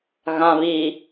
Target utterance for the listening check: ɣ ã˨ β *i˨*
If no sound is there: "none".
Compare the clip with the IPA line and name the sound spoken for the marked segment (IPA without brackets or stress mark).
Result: i˨